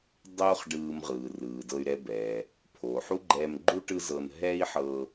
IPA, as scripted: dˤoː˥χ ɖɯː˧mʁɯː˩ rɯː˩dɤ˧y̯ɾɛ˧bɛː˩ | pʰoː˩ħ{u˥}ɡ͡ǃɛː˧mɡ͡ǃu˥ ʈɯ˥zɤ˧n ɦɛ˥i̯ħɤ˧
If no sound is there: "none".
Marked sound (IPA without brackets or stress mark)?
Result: u˥